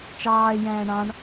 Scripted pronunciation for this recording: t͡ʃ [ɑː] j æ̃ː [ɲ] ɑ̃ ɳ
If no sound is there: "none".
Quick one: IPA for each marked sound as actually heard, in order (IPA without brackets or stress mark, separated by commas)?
ɑː, ɳ